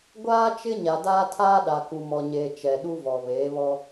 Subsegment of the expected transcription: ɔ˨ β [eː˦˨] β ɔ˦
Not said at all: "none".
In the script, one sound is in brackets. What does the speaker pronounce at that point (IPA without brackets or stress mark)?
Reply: eː˨˦